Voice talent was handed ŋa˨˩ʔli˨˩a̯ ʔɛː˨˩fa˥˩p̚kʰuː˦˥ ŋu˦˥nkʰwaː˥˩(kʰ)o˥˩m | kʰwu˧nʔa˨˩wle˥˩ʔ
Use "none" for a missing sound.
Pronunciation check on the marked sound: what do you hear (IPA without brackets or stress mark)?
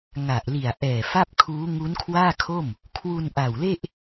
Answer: kʰ